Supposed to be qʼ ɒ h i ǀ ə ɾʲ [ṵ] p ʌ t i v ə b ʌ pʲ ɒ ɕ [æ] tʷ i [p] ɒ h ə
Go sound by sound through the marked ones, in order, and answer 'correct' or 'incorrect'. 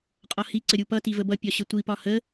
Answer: incorrect: u, incorrect: ə, correct

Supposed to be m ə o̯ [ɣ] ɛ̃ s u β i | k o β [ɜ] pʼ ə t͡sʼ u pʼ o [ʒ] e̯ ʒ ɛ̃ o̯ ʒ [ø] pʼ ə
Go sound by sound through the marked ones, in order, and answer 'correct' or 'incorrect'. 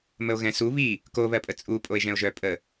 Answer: correct, correct, incorrect: none, incorrect: œ

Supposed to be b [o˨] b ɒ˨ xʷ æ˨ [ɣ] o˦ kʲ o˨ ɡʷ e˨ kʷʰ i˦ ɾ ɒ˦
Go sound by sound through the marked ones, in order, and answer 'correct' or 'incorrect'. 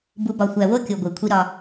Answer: incorrect: u˨, incorrect: w

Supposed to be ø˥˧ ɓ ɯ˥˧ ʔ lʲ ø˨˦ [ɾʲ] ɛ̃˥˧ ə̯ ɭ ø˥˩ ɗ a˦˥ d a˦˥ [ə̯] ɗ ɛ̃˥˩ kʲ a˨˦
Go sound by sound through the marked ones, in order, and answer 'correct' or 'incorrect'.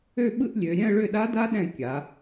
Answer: correct, incorrect: none

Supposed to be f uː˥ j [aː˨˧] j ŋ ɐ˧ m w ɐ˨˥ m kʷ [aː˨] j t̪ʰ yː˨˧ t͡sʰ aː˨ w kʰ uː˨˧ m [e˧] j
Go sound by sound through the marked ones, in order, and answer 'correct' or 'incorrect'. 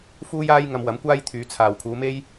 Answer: incorrect: aː˥, incorrect: aː˥, incorrect: e˥

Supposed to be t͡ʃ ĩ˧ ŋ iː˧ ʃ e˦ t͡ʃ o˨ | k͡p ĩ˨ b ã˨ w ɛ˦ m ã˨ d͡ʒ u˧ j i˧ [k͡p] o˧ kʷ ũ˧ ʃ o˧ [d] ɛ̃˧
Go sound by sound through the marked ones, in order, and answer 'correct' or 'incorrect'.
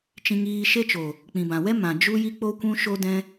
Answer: correct, correct

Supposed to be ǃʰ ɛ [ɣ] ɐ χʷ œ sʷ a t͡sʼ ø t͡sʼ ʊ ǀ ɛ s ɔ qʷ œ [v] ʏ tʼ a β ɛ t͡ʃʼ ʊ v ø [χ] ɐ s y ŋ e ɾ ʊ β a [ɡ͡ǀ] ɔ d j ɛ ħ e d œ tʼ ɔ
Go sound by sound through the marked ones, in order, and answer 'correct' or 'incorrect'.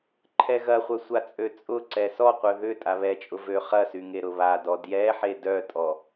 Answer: correct, incorrect: ð, correct, incorrect: d

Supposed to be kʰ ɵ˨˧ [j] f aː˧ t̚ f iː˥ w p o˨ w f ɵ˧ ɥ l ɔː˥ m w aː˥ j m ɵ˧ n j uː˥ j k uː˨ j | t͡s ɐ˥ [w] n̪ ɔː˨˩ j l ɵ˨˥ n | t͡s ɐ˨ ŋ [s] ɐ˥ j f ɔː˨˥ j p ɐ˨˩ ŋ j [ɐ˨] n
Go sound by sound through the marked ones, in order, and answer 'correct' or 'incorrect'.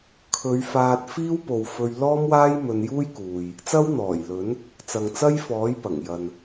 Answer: incorrect: ɥ, correct, incorrect: t͡s, correct

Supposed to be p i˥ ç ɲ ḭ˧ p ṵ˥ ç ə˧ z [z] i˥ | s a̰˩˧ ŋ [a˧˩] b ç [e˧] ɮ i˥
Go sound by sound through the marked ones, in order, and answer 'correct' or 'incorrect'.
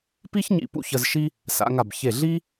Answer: incorrect: ʃ, correct, incorrect: e˧˩

